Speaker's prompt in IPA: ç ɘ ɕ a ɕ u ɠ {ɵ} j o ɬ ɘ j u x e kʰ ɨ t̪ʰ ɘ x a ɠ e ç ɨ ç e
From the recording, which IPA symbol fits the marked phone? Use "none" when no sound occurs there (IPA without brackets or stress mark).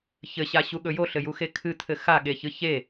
ɵ